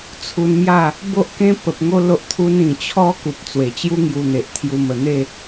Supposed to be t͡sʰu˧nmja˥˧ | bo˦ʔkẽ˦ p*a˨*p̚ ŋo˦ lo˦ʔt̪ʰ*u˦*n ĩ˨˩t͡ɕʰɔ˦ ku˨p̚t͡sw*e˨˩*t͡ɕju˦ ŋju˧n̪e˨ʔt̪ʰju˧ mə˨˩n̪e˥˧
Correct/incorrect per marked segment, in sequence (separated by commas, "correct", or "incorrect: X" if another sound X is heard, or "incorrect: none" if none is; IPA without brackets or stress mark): incorrect: ə˨, correct, correct